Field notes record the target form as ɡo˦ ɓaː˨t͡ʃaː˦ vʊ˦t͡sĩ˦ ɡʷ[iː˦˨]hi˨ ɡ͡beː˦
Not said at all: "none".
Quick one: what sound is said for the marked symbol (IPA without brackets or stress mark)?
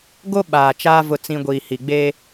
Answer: iː˨